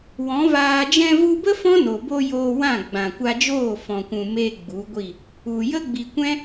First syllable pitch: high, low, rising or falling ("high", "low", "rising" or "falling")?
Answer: rising